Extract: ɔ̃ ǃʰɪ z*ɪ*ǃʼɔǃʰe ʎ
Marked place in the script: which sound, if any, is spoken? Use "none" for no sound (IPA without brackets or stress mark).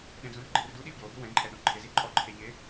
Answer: i